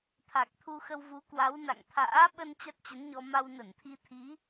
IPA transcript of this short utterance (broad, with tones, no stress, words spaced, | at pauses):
t̪ʰa˨˩k̚t̪ʰu˧xə˧w vu˨˦kwa˨˦w na̰˧˨ŋt̪ʰa̰ː˧˥ ɓə˧n t͡ɕa˦˥t̚t͡ɕə˨˦nɲɔ˧ ma˧wnə˧˩nt̪ʰi˧t̪ʰi˨˦